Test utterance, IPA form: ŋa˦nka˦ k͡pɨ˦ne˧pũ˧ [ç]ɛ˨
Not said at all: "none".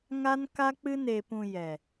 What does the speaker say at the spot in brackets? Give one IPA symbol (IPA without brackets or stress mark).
j